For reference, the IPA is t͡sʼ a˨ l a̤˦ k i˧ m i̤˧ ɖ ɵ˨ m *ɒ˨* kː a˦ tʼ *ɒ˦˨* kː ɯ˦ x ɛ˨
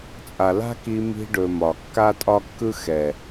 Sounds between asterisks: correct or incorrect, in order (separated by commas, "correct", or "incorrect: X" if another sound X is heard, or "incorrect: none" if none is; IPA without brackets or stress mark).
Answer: correct, incorrect: ɒ˦